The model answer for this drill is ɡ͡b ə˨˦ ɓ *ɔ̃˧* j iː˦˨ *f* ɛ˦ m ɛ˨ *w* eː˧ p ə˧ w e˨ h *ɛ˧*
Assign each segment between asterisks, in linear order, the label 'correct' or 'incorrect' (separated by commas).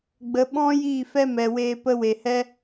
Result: incorrect, correct, correct, correct